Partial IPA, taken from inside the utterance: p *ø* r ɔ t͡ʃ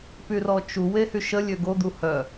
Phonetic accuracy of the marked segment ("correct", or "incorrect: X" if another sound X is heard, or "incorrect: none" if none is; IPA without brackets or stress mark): incorrect: y